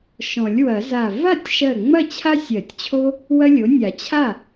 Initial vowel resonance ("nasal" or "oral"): nasal